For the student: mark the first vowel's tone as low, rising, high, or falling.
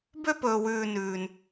high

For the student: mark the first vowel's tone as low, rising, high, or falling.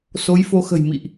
rising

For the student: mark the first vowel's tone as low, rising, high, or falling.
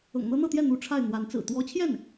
low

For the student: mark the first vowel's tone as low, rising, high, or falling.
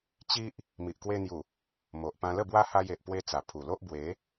high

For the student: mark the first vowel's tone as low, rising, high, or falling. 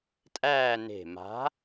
falling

